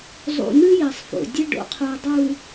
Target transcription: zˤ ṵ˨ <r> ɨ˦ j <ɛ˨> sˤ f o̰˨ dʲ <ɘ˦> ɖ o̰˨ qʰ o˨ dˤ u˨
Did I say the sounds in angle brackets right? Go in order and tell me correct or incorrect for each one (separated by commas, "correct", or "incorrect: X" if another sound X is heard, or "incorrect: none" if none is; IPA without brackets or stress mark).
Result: incorrect: n̪, correct, correct